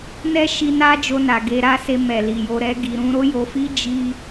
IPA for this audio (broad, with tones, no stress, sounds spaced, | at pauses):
n ɛ˦ ʃ i˧ n a˦ d͡ʒ o˧ n a˨ ɡ e˧ ɾ a˦ s e˧ m ɛ˨ l i˨ j o˧ ɾ ɛ˦ ɡ i˧ ɾ ũ˦ ɾ o˦ j o˧ f i˦ d͡ʒ i˦